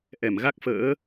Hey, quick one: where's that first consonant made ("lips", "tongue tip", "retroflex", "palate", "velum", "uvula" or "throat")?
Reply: throat